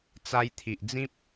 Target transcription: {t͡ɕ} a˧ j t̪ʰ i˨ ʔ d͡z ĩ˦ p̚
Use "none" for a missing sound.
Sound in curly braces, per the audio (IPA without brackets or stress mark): t͡s